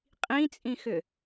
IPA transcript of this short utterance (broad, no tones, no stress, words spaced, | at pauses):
qʼĩt͡sʼĩxʏ